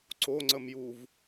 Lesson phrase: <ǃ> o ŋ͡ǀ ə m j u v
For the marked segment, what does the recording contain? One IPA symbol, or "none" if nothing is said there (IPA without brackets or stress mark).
ǀ